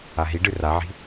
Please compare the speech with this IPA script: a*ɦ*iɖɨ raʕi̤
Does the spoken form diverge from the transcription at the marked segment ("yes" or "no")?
no